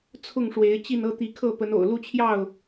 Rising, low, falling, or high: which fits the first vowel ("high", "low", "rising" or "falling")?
falling